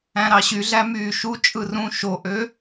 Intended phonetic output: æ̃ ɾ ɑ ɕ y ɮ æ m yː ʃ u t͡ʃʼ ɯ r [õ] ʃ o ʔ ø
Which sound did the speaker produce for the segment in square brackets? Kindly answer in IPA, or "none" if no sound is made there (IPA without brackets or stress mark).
ũ